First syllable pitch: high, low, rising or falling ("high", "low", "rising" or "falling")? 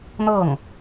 falling